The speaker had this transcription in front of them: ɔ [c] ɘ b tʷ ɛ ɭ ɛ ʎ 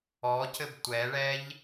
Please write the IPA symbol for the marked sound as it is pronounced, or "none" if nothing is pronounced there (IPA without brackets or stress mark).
c